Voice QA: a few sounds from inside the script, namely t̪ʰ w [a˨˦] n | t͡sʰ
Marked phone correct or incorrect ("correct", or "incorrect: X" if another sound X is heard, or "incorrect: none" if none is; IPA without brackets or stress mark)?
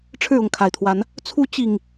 correct